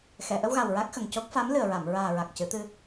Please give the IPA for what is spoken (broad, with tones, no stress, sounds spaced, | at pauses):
x ɛ˨˩˨ ʔ ə˧ w ɣ a˨˩ w ɹ a˦˥ k̚ x ə˨˩ ŋ c o˦˥ k̚ f a˧˥ m l ɨ˨˩ ə̯ ɹ a˨˩˨ m ɹ aː˨˩ ɹ a˨˩ k̚ c ɨ˨˩˦ t̪ ɨ˧